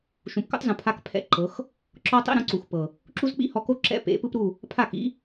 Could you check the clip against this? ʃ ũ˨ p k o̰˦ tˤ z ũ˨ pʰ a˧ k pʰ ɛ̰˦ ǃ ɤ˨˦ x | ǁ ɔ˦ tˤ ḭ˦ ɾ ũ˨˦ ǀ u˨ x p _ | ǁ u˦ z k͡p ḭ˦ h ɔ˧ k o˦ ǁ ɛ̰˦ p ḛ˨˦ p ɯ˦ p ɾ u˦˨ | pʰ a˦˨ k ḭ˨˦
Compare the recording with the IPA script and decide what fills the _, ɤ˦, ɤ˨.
ɤ˨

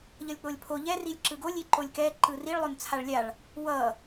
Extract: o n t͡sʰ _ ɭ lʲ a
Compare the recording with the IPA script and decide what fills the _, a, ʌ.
a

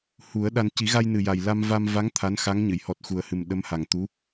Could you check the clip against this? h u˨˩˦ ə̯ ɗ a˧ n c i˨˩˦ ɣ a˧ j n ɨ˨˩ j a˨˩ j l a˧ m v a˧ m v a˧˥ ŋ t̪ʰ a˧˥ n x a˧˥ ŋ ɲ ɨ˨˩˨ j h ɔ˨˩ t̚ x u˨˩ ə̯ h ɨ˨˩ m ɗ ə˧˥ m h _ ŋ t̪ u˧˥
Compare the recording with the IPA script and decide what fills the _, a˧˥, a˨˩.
a˨˩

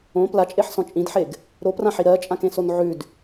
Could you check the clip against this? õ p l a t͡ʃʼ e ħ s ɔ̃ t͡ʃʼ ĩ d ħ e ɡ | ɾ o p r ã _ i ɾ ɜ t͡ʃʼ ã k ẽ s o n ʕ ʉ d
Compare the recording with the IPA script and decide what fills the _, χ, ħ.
ħ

